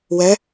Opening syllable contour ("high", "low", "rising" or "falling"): rising